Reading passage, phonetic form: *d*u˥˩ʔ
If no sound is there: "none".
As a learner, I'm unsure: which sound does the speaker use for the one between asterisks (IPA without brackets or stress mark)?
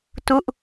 t